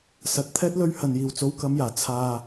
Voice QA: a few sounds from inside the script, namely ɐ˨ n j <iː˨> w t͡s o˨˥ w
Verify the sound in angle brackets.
incorrect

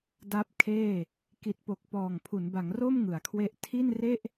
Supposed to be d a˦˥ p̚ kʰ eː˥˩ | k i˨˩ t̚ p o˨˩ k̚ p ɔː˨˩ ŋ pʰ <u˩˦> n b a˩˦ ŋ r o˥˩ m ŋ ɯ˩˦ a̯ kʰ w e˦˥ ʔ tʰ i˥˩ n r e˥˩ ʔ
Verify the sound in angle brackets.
correct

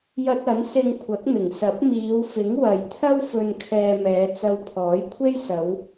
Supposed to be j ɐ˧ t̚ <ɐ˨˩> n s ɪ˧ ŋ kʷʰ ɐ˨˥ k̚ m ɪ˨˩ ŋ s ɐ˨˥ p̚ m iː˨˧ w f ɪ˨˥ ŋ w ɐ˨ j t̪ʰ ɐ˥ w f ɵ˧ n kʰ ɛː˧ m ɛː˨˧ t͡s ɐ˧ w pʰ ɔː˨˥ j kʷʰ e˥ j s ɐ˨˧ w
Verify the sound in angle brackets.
incorrect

